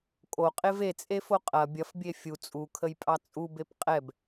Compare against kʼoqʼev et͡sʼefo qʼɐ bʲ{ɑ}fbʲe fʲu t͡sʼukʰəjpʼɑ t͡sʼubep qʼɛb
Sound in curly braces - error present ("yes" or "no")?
yes